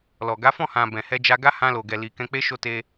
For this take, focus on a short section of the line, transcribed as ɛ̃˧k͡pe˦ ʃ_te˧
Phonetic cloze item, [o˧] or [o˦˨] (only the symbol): o˧